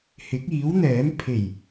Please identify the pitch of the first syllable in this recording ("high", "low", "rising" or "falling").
rising